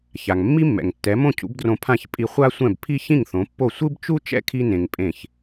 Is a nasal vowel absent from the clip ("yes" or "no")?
no